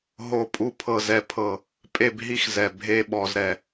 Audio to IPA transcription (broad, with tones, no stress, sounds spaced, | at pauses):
ɦ o˥˧ pʼ u˥ pʰ ɤ˥˧ z ɛ˧˩ pʰ ɤ˧˩ | pʼ e˥˧ b ɦ i˥ x z ɛ˧˩ bʱ e˥ ɓ ɔ˧ z ɾ ɛ˧˩